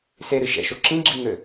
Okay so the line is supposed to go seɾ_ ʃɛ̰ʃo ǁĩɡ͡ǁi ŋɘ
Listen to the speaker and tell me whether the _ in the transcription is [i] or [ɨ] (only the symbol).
ɨ